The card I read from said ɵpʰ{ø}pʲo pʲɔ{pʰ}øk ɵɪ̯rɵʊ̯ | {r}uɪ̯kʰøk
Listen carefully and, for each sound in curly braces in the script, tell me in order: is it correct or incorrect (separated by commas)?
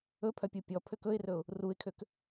incorrect, correct, correct